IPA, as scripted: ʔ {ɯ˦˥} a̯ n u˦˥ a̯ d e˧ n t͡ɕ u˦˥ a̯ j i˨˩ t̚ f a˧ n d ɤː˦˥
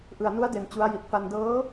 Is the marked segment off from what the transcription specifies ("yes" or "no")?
yes